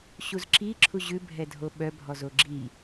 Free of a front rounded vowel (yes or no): no